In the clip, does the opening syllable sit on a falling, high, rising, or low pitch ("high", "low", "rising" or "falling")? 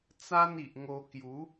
high